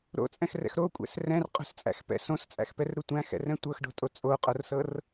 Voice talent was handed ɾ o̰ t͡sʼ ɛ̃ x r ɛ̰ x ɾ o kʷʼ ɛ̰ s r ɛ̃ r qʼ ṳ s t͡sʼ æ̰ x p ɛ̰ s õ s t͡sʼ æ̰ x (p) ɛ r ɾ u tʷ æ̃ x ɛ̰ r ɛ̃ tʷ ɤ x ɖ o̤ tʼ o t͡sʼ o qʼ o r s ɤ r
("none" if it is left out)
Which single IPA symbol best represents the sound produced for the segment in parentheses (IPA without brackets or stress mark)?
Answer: p